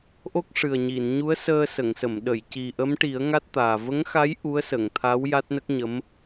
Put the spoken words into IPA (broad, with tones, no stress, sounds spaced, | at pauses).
ʔ o˦˥ k̚ ʂ ɨ˨˩ ə̯ ɲ i˨˩˨ n ɲ u˧˥ ə̯ s əː˧ s ə˨˩˨ ŋ s ə˨˩˨ m ɗ ə˨˩˨ j c i˨˩ ʔ ə˧˥ m ʈ i˨˩˦ ə̯ ŋ a˦˥ t̚ t̪ aː˨˩ v ə˧˥ ŋ x a˧˥ j ʔ u˧˥ ə̯ s ə˨˩˨ ŋ t̪ʰ a˧˥ w j a˦˥ t̚ n ə˦˥ k̚ ɲ ə˧˥ m